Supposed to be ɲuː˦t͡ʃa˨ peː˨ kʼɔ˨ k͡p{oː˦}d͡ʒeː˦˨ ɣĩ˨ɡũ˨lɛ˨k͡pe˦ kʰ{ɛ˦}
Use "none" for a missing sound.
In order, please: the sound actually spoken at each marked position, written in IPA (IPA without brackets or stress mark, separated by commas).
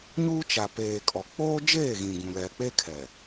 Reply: oː˦, ɛ˨